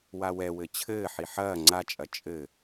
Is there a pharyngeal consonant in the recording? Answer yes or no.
yes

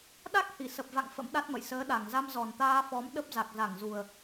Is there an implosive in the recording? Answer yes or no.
yes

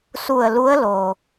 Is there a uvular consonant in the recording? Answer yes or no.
no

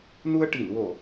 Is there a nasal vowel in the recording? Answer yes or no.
no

